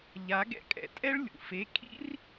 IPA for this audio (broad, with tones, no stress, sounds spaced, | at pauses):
ʎ a˨˥ ɡ ɛ̰˥ kʼ ɛ̰˨ tʼ ɛ˥ ɭ lʲ ṵ˨ f e˧˥˧ kʰ ḭ˥ r